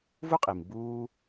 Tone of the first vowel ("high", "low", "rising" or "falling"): high